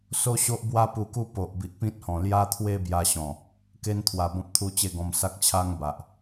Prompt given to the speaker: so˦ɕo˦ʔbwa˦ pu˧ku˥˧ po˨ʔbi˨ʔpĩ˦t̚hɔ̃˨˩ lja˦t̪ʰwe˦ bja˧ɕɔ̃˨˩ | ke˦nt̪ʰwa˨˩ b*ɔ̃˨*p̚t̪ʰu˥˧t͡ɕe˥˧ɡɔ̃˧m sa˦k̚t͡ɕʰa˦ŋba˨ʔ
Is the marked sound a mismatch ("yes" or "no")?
yes